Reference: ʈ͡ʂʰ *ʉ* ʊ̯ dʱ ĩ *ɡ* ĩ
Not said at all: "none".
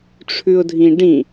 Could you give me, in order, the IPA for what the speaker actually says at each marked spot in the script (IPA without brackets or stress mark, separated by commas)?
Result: ʉ, ɖ